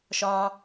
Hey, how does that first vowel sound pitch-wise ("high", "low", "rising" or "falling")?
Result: high